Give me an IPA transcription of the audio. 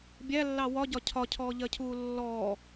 bʲælːɑ wɒɟɒ cʰɒcʰɔːʎɜcʰuː lːɔː

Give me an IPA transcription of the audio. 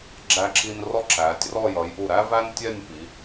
ɡ͡ǁæ˧ǁi˧n rɔ˥ǁæː˩˧tʲrɔ˥˧ jʌ˩˧jʔu˧˩ɾæ˥væː˥n tʲɛ˥˧nʲpi˩˧

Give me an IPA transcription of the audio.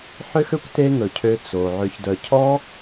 ħø˦xø˦kʷ te˦ŋɵ˨cʰø˧ t͡so˨ ʕø˨çdœ˨cʰɔ˦

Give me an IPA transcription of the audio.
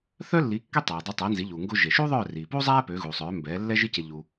θœ˥lːi˩˥ kːø˥tˤæː˩ dˤœ˧tˤæ˩˥nzi˩˥ʎuː˩ ŋɡo˧ʒe˩ʃuː˥ ðˤœː˥˩riː˩puː˥zˤæː˥ pø˩˥ɣuː˩sˤœː˩˥ mbɛː˩˥lːɛ˥ ʒi˥ce˧ ʎu˧

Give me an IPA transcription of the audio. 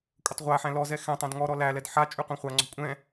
kʷʼətˤʁʷæħæ̃ lɔzɛ xɛ̃ tˤæ̃dŋɔɾɔ lælɛd ħa t͡ʃʼyqʷæ̃χʷaŋ͡ǀɔ̤ kʷʼɛ̃

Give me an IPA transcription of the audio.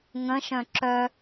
ŋə̃ʃœ̃ ǁœ

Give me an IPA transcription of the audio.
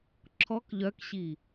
ǁʰɔk ʎœkɕi

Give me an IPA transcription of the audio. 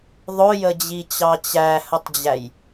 ðˤʊjəd͡ʑit͡ɕɑ t͡ɕæhətˤd͡ʑæj

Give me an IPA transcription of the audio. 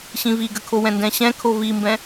ɕĩviɡəkʰo wɛ̃ndɛ̃ɕɛ̃ kʰovimbɛ̃

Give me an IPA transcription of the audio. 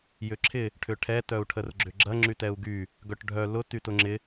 jʏǁʰɪ | ʈʰʏʈʰɛ tœu̯ʈʰərɡ͡ǁʏɡ͡ǁɐ ŋ͡ǁytɛu̯ɡy | ɡœʈɖʱœ lʊ tytʊŋ͡ǁɪ

